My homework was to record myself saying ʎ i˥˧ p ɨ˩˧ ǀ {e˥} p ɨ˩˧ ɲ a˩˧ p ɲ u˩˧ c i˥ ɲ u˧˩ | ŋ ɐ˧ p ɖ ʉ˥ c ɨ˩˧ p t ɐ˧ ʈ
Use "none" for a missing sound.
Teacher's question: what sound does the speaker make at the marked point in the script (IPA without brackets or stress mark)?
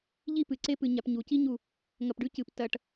e˥